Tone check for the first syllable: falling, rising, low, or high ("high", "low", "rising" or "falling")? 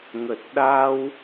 low